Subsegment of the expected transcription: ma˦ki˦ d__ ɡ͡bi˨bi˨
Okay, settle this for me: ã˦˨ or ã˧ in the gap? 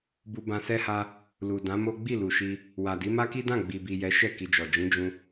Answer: ã˦˨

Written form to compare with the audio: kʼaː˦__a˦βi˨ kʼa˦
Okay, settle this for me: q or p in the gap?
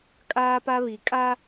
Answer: p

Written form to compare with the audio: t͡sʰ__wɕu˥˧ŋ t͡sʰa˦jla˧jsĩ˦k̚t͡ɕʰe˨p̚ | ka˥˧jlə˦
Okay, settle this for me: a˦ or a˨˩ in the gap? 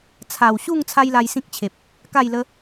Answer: a˨˩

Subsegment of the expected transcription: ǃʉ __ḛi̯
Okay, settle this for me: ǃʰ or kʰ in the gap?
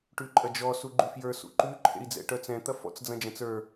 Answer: ǃʰ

